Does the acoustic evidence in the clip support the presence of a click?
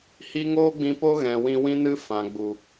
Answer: no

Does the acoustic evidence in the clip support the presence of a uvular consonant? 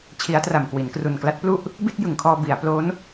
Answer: no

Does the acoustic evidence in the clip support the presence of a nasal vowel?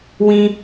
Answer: yes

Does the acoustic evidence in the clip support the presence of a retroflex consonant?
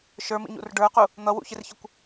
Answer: yes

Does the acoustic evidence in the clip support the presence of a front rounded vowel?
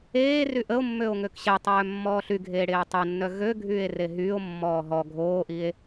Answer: yes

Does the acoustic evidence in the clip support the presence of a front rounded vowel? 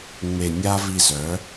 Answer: yes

